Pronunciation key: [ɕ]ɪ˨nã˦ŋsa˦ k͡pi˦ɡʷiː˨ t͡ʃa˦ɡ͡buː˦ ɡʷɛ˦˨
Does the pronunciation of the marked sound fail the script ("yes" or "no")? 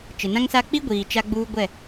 yes